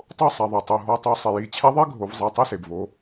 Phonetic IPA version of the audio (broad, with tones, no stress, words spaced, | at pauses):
tˤo˥˩sˤɛ˩ðˤe˩tˤo˩˧˩ ɦɔ˩˧˩tˤu˧˩˧sˤɪ˩ji˧˩˧ t͡ɕʰɛ˧˥ðˤe˧˥ɡʱo˩˧v zˤe˩˧˩tˤi˥˩se˩bvo˩˧